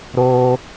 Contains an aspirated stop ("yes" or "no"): no